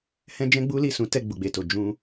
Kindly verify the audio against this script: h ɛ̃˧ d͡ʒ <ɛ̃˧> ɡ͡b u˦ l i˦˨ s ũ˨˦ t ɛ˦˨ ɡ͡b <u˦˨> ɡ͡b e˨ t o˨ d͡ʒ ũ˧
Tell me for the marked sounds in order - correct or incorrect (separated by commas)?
correct, incorrect